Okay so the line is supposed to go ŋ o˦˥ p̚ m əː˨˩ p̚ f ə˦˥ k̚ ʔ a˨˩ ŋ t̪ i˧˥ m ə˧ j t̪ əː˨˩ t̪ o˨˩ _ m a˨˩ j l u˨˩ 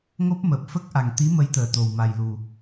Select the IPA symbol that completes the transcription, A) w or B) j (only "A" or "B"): A